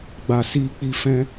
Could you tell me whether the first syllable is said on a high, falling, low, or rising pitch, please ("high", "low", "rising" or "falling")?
low